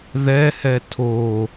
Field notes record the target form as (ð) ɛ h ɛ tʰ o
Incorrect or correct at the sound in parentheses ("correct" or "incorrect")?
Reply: correct